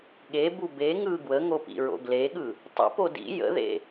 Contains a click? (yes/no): no